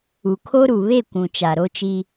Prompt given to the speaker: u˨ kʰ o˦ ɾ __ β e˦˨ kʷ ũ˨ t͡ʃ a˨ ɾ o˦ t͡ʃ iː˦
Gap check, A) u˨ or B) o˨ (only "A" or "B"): A